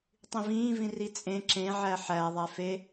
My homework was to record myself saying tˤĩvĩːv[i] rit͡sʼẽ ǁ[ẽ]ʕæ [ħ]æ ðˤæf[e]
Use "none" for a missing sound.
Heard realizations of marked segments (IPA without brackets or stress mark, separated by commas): ĩ, ẽ, ħ, e